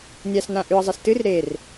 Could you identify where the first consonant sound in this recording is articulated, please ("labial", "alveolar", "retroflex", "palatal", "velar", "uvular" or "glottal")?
alveolar